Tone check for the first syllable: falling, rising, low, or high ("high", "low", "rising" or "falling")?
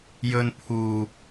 low